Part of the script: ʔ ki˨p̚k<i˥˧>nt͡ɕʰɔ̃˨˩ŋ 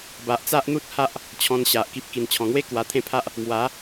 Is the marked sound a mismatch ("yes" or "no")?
yes